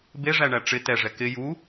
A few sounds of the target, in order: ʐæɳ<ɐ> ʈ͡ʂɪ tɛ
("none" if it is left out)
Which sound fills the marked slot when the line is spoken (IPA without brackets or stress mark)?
æ